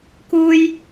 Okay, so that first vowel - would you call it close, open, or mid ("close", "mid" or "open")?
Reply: close